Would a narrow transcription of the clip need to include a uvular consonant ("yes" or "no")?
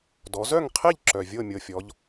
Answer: yes